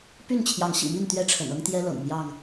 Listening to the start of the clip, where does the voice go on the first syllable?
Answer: falling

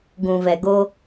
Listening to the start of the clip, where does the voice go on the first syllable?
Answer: low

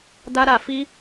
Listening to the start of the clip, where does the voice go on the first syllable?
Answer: high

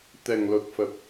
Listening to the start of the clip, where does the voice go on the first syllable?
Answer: low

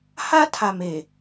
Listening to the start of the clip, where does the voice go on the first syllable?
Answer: high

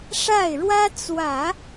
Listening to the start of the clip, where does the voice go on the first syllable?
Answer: falling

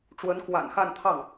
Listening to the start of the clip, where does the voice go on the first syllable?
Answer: rising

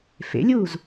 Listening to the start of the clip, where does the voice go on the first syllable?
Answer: rising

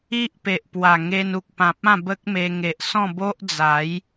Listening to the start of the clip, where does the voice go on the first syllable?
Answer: high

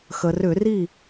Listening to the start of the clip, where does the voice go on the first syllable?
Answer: low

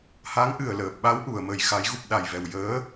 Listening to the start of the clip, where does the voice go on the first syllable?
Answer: rising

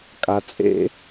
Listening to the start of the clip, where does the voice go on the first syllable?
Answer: low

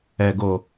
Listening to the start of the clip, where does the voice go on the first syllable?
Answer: low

